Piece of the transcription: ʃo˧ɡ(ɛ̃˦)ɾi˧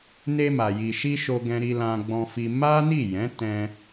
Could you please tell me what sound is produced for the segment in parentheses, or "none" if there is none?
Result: ɛ̃˧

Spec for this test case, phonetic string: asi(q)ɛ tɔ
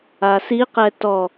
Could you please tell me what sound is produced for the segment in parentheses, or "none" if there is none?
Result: q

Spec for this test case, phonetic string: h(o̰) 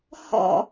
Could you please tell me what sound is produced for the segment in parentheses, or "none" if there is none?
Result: ɔ̰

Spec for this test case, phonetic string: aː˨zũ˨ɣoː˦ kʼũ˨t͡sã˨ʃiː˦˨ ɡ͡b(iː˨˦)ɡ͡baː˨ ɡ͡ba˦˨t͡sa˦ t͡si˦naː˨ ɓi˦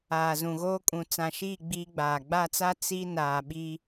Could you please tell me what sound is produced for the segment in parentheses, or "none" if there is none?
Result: iː˦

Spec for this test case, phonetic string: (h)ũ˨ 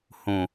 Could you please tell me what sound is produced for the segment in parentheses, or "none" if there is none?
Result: h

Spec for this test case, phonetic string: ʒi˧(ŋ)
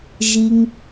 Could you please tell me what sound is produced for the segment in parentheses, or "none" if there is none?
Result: ŋ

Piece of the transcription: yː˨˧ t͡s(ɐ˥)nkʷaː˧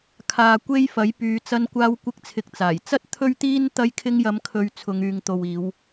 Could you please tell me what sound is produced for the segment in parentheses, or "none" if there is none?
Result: ɐ˧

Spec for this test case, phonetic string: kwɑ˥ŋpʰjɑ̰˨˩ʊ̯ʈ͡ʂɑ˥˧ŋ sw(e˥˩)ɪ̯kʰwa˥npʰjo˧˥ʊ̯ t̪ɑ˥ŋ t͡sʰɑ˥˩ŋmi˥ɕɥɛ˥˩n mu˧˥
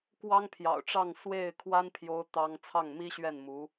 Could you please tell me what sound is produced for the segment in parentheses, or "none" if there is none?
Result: e˥˩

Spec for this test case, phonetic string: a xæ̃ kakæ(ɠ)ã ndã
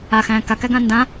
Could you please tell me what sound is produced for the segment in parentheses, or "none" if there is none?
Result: ɡ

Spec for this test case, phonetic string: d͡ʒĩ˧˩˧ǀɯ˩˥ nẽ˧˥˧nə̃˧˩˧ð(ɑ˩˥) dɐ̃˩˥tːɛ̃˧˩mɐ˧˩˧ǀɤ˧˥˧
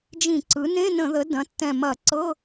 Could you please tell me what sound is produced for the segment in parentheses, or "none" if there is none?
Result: ə˩˥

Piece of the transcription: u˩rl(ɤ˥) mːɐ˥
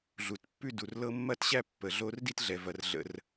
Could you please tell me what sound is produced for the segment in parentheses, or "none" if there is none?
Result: ɤ˥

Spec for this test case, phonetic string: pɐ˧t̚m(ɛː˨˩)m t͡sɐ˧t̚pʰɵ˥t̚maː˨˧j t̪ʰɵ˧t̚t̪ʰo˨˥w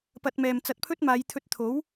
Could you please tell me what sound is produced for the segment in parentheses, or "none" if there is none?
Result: ɛː˨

